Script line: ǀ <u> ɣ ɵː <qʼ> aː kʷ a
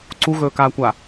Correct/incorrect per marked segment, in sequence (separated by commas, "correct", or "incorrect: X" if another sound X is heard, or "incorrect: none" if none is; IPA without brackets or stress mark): correct, incorrect: k